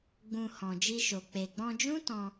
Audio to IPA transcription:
ɡ͡bũ˨ hɔ̃˨d͡ʒi˧ʃo˨ k͡pe˨ɡ͡bɔ̃˧d͡ʒũ˦tɔ̃˧

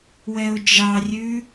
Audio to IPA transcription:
wɛʊ̯d͡ʒɑrʲʉ

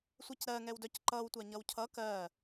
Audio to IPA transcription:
sʷɛcɾɜŋɛwdœc ǃʌwtʷa ɲʌwcʰʌ kɜ

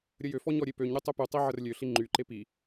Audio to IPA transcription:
ɾʲəjøfɔ ɲɔɾʲepøɲɾʲø tˤøpytˤi ʕərlʲøɬi ŋ͡ǃyǃe pi

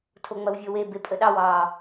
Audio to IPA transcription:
tʰoŋ͡mɐwvʲowe bepʼəɗɑw ɑ

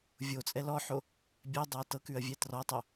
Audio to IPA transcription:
vʲot͡sʼɛl ɔħo | bʲɛdˤɤɐ̯ tɤkʉɐ̯vʲɛ trɔtˤo

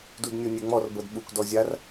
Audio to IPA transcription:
dudnʲonʲɛŋ͡mɔr bɤdɓuk dɔzʲar

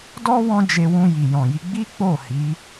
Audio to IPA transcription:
dɔ˦ wɔ̃˦d͡ʒe˧wũ˧ ji˨jɔ̃˨ji˧ ɡ͡bi˦k͡po˦˨ hi˨˦

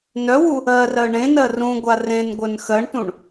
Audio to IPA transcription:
nœwu | ɜrɜ ɳẽnɜ rũɡʷa rẽnɡʷœn xɜɳtũɳ

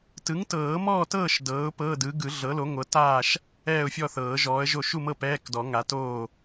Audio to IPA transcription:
tɯ˩˥ŋtɤː˨˩˦mɔː˥˨tɤː˥˨ʃ dɤː˩˥ʊ̯pɤ˧˥˧dɯ˩˥ ɡɯ˨˩˦ ɮɤ˩˥lo˩˥ŋʷɤ˩˥taː˥˨ʃ | ɛː˥˨ʊ̯fʲɔ˥˨θɤː˨˩˦ ʒɔː˩˥ə̯ʒo˥˨ ʃu˥˨mɤ˥˨ pɛː˧˥˧kdɔ˨˩˦ ŋa˩˥toː˥˨

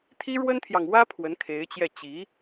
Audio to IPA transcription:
t̪ʰi˥ɻwə˥nt̪ʰjɑ˨ŋwä˥ pʰwə˧˥nkʰe˧˥ɪ̯t͡ɕjɛ˥˩ t͡ɕi˧˥

